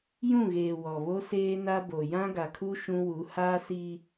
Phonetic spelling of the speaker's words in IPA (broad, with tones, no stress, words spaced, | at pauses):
jũ˦˨ɣeː˨ wɔ˨βo˦ seː˦na˦bo˨ jã˦ ɡa˨kʰu˦ ʃũ˦ wu˨˦haː˦ si˦